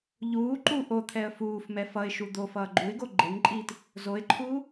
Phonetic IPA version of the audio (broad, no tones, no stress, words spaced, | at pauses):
ʎuː ǃu ʔot̪ʰɛə̯ fuːf mɛfʌɪ̯ʃu d̪of ʌːɡ͡ǃuɪ̯ɡo ɡ͡ǃeŋǃʼiːt | zoɪ̯ǃʰuː